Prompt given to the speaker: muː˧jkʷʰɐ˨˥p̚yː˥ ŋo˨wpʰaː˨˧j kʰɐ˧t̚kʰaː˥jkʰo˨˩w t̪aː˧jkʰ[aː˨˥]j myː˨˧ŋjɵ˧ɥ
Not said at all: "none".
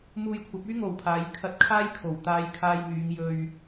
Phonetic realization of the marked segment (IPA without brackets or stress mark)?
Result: aː˧